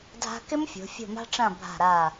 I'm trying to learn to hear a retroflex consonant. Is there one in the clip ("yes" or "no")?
yes